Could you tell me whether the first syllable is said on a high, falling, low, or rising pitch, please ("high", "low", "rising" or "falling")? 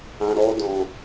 low